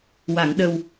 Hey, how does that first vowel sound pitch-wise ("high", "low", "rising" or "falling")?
low